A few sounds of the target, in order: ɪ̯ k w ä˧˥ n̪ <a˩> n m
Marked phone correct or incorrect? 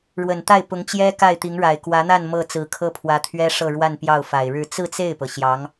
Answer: incorrect